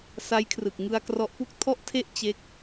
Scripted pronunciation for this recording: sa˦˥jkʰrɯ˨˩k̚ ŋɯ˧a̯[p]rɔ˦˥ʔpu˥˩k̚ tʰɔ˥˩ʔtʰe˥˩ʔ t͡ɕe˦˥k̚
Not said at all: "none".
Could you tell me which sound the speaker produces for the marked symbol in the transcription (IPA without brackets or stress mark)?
k